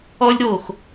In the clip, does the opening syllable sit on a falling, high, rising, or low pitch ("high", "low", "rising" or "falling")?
high